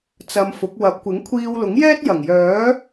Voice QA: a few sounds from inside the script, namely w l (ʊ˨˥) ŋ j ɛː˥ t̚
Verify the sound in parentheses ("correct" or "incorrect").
correct